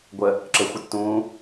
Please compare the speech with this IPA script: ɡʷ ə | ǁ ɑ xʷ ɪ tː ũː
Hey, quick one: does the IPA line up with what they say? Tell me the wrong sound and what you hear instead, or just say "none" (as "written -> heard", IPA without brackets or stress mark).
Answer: ɑ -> ə